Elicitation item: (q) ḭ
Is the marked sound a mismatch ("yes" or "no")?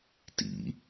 yes